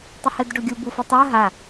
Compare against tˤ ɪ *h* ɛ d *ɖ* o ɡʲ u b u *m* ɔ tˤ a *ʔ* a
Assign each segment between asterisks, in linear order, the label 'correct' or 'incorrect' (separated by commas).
correct, correct, incorrect, incorrect